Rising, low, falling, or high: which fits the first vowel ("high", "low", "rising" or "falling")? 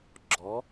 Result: rising